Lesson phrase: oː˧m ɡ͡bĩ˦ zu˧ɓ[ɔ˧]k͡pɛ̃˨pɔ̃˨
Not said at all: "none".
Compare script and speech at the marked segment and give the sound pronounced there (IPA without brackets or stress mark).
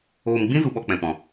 ɔ˧